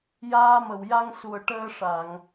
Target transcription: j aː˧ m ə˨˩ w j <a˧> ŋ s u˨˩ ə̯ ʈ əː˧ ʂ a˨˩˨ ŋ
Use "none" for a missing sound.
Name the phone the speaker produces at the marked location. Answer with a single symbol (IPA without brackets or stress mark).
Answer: a˧